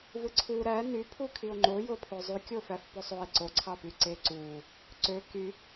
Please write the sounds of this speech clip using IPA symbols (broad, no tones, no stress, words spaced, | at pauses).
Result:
vɯǀʰu ɾæ nypʰu kʰio̯ŋ͡ǃojopʰo zˤykʲo fæfposˤoe̯ ǀoǀʰɑpy ǀeǀu | ǀø ky